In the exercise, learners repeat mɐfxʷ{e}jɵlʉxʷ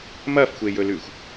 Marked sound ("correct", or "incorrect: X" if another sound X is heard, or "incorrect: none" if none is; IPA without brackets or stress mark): correct